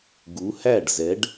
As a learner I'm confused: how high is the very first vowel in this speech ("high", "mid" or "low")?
high